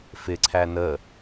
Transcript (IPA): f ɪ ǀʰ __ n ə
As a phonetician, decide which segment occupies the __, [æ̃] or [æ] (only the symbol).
æ